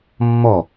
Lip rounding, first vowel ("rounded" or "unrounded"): rounded